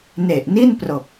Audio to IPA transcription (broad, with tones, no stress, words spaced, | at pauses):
ne˨˩ʔ ni˥˩n pro˨˩k̚